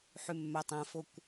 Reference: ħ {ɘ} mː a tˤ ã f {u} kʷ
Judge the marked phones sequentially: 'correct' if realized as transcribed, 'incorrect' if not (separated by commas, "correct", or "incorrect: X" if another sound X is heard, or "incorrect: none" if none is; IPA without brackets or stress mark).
incorrect: ʉ, incorrect: o